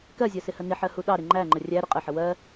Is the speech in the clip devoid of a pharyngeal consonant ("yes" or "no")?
no